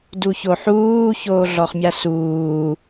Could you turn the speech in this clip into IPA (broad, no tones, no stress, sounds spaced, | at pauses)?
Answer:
d u ç o ħ uː ç oː ɮ ɔ χ mʲ a s uː